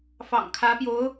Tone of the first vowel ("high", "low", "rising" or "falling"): low